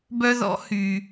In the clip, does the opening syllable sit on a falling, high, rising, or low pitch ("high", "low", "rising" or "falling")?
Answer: high